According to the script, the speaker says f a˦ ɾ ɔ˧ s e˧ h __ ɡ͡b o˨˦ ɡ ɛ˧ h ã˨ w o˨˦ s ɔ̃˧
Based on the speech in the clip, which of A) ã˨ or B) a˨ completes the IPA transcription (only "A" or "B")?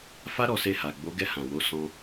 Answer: B